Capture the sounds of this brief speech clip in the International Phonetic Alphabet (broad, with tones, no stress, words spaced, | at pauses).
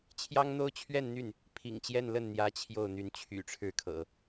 t͡ɕʰjɑ˥ŋn̪o˥ʊ̯ t͡ɕʰɥɛ˥˧nn̪y˥˩n | pʰḭ˨˩ŋt͡ɕjɛ˥˧nlə˥˩n n̪jä˧˥ t͡ɕʰjo˥˩ʊ̯ n̪y˧˥nt͡ɕʰy̰˨˩ʈ͡ʂʰɻ̩˥˩kʰɤ̰˨˩˦